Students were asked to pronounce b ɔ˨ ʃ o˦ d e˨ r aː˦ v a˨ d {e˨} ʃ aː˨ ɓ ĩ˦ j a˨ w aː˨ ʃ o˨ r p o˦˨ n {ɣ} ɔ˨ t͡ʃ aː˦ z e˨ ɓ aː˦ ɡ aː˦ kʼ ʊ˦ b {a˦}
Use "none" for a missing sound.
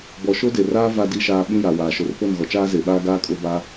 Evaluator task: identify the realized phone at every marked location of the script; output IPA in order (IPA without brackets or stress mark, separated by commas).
i˨, ɣ, a˦